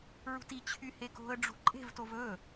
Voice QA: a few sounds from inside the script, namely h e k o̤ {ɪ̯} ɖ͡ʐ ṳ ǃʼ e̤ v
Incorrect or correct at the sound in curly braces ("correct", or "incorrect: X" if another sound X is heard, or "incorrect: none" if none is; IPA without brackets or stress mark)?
incorrect: ə̯